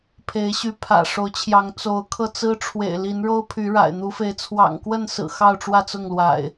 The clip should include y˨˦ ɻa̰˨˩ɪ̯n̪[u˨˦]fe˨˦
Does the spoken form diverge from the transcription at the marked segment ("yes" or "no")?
no